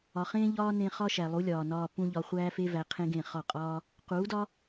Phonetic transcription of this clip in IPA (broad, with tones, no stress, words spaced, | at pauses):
ɒ˨χẽː˦ʎɒː˦ nẽ˧ χɒ˦ʃæ˨lˠu˨˦lʲɒː˨ nɒː˧ pũ˦ ʎɒ˧χʷæː˦fe˦ væ˧qʰẽ˦ɡẽ˦˨ χɒ˦˨qʼɒː˦ | quː˨˦dɒ˦